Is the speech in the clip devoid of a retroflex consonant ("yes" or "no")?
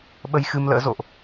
yes